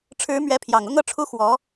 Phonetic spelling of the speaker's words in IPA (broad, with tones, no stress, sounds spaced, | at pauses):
ʈ͡ʂʰ ɻ̩˧˥ m ɥ ɛ˧˥ pʰ j ɑ˨˩ ŋ ʊ˥ ŋ ɤ˥˩ ʈ͡ʂʰ u˥ x w ɔ˧˥